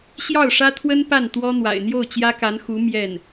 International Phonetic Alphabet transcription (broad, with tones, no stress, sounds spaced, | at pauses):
ɕ j ɑ˥˩ ʊ̯ ʂ ä˥ t̪ʰ w ə˥ n p a˥˩ n t̪ w ɔ˥ n̪ w a̰˨˩ ɪ̯ n̪ j o˥˩ ʊ̯ t͡ɕ j ä˥ k a˧˥ n x u˧˥ m j ɛ˥˩ n